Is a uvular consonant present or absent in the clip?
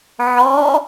absent